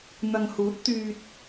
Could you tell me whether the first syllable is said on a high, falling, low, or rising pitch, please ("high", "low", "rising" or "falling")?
low